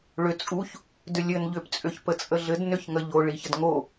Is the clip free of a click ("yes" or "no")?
yes